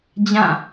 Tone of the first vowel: falling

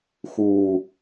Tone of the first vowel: low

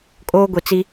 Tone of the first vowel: high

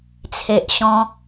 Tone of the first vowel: low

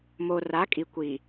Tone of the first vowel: low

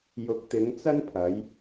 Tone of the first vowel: rising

